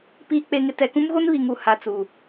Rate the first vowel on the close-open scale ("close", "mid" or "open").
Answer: close